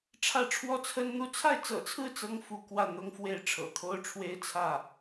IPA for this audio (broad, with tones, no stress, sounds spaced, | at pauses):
ʈ͡ʂʰ ä˥˩ ʈ͡ʂʰ w ɔ˥ t͡sʰ ə˥ n n̪ u˥ t͡sʰ a˥˩ ɪ̯ t͡s ɤ̰˨˩ t͡sʰ ɹ̩˥˩ t͡s ɤ˥ ŋ f u˧˥ k w ä˥˩ n̪ ʊ˥ ŋ f w e˥ ɪ̯ ʈ͡ʂʰ ɤ̰˨˩ t̪ʰ o˥ ʊ̯ ʈ͡ʂʰ w e˥ ɪ̯ t͡sʰ ä˥˩